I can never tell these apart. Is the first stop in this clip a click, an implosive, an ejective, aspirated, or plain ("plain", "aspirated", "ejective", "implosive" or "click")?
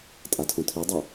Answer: ejective